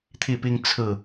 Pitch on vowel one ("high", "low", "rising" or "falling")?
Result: falling